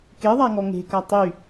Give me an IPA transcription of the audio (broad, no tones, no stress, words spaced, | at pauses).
keðˤaŋɔ ŋe̤ka tˤy